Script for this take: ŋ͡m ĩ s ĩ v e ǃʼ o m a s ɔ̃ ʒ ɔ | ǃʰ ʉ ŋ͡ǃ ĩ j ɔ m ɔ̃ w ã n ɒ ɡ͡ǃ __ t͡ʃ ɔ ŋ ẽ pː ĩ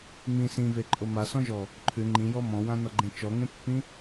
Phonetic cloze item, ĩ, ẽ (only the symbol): ẽ